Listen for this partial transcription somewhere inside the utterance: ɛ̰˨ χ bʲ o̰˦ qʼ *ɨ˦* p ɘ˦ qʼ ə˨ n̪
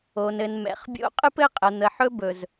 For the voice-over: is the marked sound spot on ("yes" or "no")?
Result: yes